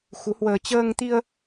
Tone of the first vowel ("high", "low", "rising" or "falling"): rising